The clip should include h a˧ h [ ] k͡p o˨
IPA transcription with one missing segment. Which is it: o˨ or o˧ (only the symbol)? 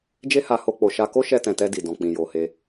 o˧